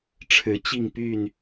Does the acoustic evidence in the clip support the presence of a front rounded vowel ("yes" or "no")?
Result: yes